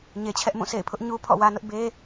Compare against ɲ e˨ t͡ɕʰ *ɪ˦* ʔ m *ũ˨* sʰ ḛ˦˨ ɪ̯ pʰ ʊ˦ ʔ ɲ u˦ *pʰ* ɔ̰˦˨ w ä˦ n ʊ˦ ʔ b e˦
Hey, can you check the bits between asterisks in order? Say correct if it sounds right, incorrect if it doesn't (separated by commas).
incorrect, incorrect, correct